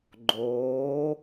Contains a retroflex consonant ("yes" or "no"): no